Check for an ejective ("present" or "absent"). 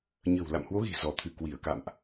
absent